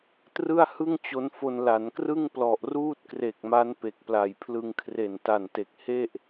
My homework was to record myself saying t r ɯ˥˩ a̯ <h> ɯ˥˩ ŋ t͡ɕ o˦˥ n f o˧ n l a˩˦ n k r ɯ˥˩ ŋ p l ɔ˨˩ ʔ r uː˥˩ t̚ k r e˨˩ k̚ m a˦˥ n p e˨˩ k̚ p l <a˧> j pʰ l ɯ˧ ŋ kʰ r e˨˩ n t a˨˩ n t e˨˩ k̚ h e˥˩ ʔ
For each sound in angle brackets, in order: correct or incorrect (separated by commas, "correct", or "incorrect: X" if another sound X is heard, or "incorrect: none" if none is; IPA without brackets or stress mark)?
correct, incorrect: a˨˩